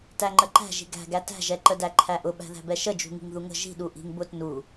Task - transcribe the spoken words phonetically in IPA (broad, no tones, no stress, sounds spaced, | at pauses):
t æ ŋ͡ǃ ə ǃ æ̤ ʒ i̤ ɡ æ̤ ɡ æ t æ̤ ʒ ɛ ǃ ə d æ ǃʰ æ ʔ ʊ ɓ æ̤ ð æ̤ b ɛ ʃ ə d͡ʒ ṳ ŋ i̤ ŋ ð u ŋ ə̤ ʒ i̤ ɗ u ʔ i̤ ŋ b ʊ t n u